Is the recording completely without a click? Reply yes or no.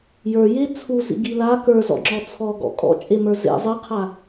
no